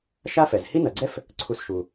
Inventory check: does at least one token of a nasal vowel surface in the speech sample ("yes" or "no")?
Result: no